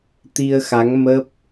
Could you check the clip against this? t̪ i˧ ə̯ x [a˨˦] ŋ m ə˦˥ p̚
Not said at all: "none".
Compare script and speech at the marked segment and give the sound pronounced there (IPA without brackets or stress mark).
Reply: a˨˦